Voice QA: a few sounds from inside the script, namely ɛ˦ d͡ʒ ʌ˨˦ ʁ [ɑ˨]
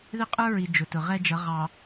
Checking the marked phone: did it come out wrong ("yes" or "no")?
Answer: no